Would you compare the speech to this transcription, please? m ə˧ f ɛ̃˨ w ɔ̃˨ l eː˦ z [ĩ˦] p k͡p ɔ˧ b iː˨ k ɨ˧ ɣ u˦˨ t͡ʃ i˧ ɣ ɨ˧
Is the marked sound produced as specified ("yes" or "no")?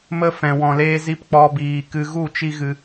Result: no